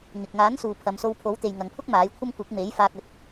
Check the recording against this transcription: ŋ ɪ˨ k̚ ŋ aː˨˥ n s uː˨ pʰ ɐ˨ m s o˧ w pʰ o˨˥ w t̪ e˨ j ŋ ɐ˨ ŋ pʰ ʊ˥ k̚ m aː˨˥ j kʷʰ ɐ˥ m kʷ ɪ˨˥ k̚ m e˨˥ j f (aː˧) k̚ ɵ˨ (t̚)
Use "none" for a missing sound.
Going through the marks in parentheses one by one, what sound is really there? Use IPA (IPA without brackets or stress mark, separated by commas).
aː˧, t̚